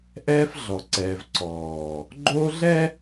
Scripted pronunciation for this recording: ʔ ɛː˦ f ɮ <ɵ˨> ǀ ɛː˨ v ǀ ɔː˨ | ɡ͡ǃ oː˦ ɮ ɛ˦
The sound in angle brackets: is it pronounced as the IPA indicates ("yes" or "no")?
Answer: no